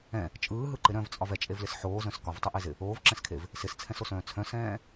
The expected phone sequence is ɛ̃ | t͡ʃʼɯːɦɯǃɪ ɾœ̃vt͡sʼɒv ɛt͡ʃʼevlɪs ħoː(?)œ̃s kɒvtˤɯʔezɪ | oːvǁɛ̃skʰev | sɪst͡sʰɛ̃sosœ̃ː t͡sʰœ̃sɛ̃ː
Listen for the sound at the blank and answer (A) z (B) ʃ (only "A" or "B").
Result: A